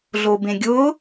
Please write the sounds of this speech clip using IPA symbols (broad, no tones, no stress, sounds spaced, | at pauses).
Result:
ɮ o b ẽ ɡʲ ʊ